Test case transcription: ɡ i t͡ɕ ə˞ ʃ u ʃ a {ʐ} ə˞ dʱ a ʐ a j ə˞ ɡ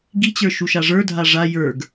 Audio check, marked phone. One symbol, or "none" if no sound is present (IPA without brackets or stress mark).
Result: ʐ